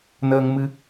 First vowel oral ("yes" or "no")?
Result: yes